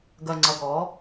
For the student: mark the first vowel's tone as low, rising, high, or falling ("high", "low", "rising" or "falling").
low